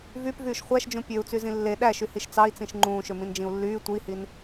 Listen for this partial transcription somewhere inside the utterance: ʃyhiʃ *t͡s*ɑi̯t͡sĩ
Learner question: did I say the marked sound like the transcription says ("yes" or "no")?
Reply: yes